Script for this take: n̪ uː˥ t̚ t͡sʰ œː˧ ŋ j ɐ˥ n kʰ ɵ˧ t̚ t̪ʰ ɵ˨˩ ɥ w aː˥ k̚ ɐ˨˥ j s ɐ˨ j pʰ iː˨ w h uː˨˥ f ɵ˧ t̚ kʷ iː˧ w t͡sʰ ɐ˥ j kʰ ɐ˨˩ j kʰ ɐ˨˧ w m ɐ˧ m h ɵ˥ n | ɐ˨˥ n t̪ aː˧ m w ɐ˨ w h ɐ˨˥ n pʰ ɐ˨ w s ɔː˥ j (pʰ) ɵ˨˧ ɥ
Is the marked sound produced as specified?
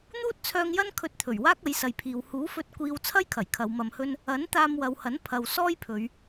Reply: yes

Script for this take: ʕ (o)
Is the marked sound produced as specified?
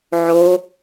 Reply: yes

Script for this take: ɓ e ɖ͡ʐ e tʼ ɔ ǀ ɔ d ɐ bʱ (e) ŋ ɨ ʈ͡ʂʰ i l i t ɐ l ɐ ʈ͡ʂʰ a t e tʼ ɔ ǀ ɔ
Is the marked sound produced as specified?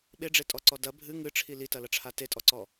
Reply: no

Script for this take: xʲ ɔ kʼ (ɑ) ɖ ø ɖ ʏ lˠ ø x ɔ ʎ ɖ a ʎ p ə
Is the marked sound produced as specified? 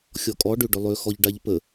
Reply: no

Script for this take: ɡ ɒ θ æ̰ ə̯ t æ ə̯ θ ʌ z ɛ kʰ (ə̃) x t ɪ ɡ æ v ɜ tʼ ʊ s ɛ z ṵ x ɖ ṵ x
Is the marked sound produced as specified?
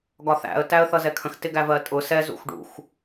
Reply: yes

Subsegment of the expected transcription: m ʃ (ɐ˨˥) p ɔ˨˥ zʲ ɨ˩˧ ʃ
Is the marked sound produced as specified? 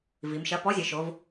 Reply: yes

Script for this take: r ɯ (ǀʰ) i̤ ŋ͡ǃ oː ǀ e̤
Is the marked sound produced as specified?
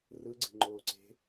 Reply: no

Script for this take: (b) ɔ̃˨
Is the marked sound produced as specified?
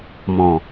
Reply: no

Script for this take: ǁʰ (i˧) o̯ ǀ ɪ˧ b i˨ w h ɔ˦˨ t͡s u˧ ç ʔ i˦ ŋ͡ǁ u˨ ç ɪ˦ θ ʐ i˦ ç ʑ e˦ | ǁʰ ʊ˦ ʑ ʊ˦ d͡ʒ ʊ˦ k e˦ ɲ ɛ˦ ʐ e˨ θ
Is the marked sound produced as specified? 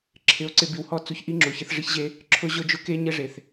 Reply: no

